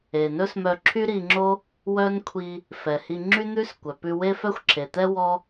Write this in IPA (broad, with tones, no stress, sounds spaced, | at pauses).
e˩ n ɵ˥ s m œ˧ ǁʰ y˥ ɾ i˧ ŋ͡ǁ o˥ | w œ˥ n kʷʰ i˧ | f ɛ˩ h i˧ ŋ͡ǁ y˥ n̪ ʉ˥ s kʷ œ˩ p ʉ˧ w e˥ f œ˥ xʷ ǁʰ e˩ t̪ ɛ˥ w ɔ˥